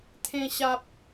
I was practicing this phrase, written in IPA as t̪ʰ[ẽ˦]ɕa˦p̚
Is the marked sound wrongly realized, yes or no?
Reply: no